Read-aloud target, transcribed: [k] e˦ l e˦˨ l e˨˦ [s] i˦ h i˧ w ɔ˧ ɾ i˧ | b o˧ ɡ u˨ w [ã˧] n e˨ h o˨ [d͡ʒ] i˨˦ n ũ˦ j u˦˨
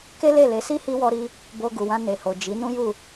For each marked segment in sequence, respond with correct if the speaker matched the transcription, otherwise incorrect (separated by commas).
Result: correct, correct, correct, correct